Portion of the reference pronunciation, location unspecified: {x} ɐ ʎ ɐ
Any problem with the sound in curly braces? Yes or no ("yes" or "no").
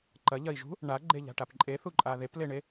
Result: yes